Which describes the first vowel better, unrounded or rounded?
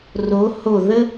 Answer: rounded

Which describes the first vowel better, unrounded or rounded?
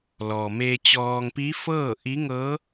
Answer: rounded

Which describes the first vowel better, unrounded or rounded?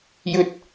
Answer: rounded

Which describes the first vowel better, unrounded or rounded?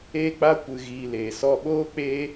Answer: unrounded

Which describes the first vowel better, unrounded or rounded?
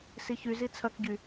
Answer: unrounded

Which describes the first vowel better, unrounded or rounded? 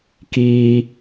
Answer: unrounded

